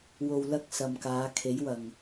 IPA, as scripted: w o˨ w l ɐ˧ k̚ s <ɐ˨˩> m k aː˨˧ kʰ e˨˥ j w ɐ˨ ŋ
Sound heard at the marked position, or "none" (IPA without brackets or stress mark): ɐ˨